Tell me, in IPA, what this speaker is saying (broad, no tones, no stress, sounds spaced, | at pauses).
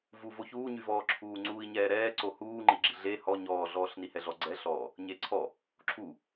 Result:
v u v o ç uː ɲ y v ɔː ǁʰ uː ŋ͡ǀ uː i̯ ɲ ɛː ɾ ɛː ǀ o h uː ŋ͡ǃ i ɡ͡ǁ i ɮ e h ɔ ɲ ɔː ɮ ɔː ɬ n i h ɛ ɮ ɔ ɡ͡ǀ ɛ ɬ ɔː | ɲ e ǀʰ ɔ | ǁʰ u